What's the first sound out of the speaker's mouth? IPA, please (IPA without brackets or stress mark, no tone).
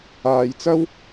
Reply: aː